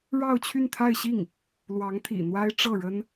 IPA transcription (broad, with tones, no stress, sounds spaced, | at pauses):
ɻ ɑ˥˧ ʊ̯ t͡ɕʰ y˥˧ n t̪ʰ a˥˧ ɪ̯ ɕ i˥˩ ŋ | l w ɑ˧˥ ŋ t̪ʰ ḭ˨˩ n̪ w a˥ ɪ̯ ʈ͡ʂ ɤ˥˩ ɻ ə˥ n